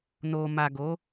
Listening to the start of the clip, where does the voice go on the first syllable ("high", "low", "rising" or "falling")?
low